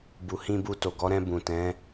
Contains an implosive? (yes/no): no